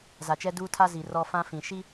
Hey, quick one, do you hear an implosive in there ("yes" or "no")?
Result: no